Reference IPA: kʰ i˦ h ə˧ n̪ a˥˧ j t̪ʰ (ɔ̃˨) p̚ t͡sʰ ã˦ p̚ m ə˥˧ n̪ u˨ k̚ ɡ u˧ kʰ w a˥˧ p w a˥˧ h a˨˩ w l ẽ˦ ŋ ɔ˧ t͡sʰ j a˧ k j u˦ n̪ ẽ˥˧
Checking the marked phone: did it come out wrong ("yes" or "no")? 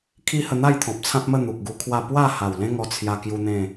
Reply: no